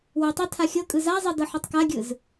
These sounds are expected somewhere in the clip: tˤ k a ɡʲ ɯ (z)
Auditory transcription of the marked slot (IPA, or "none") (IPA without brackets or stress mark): z